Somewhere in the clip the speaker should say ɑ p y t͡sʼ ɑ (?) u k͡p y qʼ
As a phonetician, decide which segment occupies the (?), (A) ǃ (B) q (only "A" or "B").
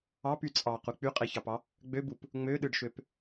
B